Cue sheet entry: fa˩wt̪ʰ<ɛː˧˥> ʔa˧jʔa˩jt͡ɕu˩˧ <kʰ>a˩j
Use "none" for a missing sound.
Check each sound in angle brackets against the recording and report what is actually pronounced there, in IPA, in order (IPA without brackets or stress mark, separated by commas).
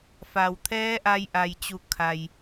ɛː˧˥, kʰ